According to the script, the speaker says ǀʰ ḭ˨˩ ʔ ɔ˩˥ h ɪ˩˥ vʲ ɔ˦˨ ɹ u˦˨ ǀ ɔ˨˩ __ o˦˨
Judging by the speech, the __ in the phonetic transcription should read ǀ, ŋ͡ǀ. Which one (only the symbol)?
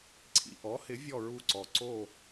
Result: ǀ